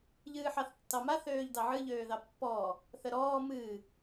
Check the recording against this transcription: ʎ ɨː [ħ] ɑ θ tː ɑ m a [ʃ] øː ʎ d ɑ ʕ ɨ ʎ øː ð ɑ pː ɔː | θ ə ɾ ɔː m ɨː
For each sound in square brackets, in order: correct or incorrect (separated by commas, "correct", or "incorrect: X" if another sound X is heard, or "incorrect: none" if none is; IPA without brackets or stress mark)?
correct, incorrect: θ